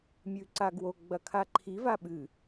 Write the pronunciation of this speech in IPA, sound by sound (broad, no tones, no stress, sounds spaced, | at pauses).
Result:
mʲ ʉ ǀ a ɡ w o ɡ͡b ɐ kʰ a ǃʰ i v a ɓ ɨ